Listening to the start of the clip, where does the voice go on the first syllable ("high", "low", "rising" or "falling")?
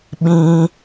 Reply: high